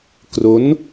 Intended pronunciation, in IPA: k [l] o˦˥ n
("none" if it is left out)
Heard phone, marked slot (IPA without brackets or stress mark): r